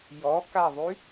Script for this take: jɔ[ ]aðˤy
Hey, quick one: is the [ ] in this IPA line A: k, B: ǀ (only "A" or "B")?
A